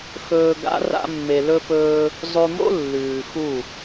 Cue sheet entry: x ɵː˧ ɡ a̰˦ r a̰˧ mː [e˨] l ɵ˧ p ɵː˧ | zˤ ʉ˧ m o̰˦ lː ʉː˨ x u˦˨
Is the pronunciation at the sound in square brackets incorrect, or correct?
correct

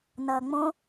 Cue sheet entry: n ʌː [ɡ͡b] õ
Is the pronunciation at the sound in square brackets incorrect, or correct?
incorrect: ŋ͡m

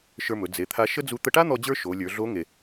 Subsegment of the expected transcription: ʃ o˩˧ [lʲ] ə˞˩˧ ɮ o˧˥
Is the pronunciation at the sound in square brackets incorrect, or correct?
correct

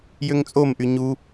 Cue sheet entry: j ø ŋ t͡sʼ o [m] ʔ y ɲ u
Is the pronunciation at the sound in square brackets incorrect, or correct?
correct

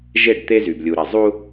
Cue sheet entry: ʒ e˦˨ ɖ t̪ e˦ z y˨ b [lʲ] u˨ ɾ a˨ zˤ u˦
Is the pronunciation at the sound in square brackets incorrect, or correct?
correct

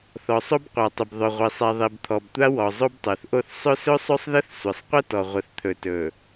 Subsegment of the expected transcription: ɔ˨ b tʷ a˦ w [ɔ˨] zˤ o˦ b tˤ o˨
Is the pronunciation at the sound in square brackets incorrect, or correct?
correct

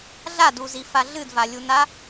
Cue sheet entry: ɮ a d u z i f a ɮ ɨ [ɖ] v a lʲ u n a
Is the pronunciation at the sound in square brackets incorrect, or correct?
incorrect: d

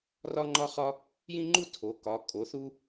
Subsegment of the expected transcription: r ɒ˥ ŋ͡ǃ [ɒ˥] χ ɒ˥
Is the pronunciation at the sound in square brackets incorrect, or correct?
correct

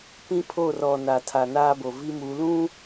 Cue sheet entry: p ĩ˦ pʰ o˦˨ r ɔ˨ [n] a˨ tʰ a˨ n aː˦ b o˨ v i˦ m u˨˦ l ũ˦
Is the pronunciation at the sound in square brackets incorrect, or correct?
correct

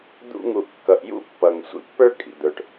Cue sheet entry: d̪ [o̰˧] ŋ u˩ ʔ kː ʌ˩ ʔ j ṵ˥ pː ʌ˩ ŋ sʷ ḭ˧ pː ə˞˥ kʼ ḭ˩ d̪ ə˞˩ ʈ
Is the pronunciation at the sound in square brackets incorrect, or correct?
incorrect: ṵ˧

